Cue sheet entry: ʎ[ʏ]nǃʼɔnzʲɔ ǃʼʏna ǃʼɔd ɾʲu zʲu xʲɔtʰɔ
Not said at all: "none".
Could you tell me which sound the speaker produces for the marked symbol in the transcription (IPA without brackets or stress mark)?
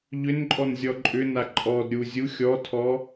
ʏ